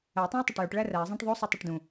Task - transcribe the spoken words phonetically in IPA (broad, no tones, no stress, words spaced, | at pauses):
æ tˤæ̃ə̯tˤoʈjoʈ ɭæræə̯ zˤæ̃ʈðˤo sˤutˤoʈdũ